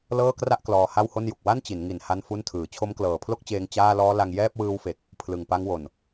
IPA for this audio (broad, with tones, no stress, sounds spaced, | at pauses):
l ɤː˥˩ k r a˥˩ ʔ k l ɔː˧ h a˥˩ w h o˥˩ n j u˨˩ k̚ w a˥˩ n t͡ɕ i˩˦ n ŋ i˨˩ n h a˥˩ n f u˥˩ n tʰ ɯː˩˦ t͡ɕʰ o˦˥ m k l ɤː˨˩ pʰ l o˥˩ k̚ t͡ɕ eː˧ ŋ t͡ɕ aː˥˩ l ɔː˦˥ l a˧ ŋ j ɛː˥˩ p̚ w ɯː˦˥ w f e˨˩ k̚ | pʰ l ɯ˨˩ ŋ p a˦˥ ŋ w o˨˩ n